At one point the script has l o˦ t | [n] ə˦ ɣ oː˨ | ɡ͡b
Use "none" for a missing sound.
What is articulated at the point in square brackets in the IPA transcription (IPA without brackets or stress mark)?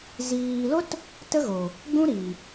t